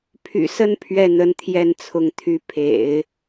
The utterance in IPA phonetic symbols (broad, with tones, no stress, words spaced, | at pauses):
pʰy̰˨˩sə˥˧n pʰɥɛ˥˩n̪ə˧˥nt̪ʰjɛ˥˩nt͡sʰʊ˧˥ŋ t̪ʰy˧˥pʰḛ˨˩˦ɪ̯